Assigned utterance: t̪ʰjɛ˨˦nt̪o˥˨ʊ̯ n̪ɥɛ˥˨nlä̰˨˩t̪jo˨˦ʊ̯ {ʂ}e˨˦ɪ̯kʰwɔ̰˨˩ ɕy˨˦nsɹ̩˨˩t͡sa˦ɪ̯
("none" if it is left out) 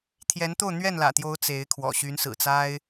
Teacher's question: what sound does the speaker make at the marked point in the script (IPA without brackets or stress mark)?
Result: t͡s